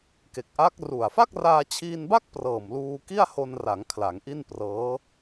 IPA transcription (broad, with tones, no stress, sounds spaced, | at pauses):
k e˨˩ k̚ ʔ a˦˥ k̚ r u˨˩ a̯ f a˥˩ k̚ r aː˧ t͡ɕʰ iː˧ n b a˥˩ k̚ p r ɤː˨˩ m l uː˧ k i˥˩ a̯ h o˧ n r a˩˦ ŋ kʰ l a˩˦ ŋ ʔ i˥˩ n p r ɤː˦˥